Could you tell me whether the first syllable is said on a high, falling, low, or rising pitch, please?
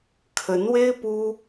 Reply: rising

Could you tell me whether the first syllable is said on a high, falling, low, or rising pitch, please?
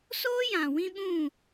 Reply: high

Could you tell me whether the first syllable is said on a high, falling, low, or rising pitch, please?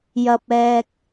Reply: low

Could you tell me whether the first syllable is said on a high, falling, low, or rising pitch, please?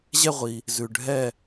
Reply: falling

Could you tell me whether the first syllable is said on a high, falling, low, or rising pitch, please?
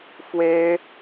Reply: high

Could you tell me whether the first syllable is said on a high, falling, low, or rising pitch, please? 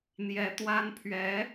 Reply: high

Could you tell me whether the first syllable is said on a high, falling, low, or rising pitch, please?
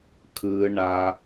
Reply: low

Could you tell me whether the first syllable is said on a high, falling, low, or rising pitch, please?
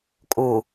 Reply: low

